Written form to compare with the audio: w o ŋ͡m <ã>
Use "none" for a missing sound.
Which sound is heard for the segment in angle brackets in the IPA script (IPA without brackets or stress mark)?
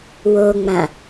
ã